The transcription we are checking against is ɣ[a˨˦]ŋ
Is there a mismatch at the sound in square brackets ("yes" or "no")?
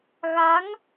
no